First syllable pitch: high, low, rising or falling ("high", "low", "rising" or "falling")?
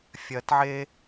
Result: low